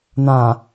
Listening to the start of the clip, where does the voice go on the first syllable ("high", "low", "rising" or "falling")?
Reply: low